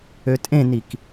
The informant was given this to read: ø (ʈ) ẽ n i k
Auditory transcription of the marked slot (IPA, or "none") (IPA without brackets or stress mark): tʼ